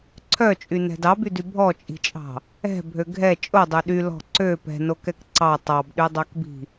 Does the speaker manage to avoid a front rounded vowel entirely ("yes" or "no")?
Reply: no